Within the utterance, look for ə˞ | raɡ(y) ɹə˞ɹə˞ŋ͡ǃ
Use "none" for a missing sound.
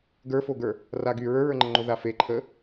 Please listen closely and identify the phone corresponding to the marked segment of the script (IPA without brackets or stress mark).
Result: y